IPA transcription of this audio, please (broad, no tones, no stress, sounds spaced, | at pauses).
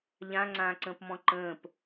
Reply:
ʎ ã ŋ͡ǀ ãː ǀ ə̃ː p m ɔ̃ ǃ ə̃ː p